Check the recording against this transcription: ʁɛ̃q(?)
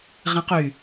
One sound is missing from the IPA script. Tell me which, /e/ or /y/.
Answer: y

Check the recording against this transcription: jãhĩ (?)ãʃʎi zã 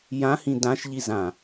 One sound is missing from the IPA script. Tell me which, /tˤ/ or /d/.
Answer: d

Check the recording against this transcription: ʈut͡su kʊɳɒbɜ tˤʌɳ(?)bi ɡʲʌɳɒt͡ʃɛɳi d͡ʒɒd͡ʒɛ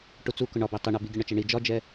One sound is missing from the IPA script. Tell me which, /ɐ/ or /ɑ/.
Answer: ɑ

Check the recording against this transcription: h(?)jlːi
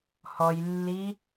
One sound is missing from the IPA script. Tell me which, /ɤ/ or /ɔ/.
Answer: ɔ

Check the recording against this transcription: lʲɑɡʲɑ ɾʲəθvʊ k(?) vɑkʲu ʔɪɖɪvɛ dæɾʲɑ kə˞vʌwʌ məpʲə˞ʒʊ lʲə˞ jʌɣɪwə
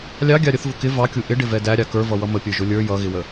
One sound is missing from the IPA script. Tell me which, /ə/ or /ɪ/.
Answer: ɪ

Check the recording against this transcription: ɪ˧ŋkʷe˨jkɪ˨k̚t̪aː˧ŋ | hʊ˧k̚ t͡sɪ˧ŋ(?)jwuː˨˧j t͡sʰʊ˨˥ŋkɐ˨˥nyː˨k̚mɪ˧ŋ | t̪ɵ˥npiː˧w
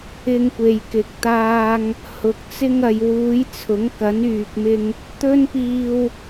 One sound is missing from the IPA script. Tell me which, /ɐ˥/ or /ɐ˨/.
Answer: ɐ˨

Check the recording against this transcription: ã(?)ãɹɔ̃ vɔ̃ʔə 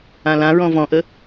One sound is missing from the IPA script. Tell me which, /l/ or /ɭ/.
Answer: l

